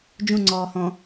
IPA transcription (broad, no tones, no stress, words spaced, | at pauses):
d͡ʒũŋ͡ǀɔːhɔ̃